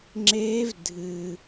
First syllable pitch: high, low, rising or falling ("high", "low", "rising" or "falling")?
rising